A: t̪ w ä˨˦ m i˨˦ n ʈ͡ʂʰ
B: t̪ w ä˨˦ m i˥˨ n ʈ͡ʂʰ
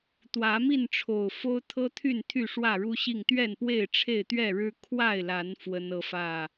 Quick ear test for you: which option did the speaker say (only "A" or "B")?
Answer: B